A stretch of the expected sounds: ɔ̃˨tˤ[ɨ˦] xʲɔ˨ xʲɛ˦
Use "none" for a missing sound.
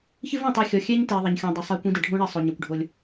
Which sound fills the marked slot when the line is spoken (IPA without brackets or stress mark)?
e˦